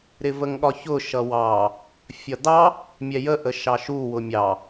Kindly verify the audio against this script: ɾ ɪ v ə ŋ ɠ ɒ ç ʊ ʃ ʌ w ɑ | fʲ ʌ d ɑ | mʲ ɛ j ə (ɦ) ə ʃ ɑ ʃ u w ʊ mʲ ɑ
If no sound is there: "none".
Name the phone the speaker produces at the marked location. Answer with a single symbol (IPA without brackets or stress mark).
ʔ